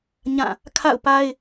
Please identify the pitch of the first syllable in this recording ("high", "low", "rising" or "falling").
falling